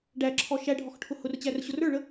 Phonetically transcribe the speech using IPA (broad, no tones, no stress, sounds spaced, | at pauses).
ɖ æ ǁʰ ɔ ʃ æ ɖʱ ɔ x ʈʰ ʊ h ʊ r t͡ɕ æ r ɕ ʊ r ə˞ ɭ ə